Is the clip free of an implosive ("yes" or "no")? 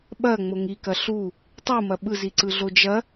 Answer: no